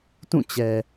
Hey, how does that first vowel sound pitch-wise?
falling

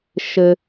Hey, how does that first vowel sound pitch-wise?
low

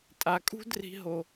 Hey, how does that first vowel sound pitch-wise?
low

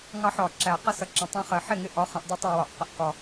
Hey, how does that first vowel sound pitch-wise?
rising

